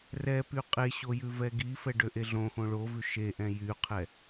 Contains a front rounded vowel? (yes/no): yes